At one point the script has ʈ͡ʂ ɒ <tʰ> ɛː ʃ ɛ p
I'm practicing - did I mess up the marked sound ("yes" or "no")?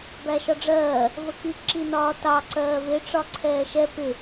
yes